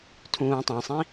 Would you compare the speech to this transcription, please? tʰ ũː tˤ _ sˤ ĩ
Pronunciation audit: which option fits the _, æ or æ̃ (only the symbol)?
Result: æ̃